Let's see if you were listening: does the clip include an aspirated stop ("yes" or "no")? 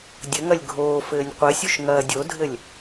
no